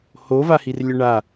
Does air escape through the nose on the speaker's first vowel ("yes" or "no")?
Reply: no